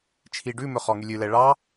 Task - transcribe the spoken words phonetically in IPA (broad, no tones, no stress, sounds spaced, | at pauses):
t͡ʃʰ i ɖ ʉ m ɵ χ ɔ ŋ y lʲ ʉ l ɛ ɭ ɑ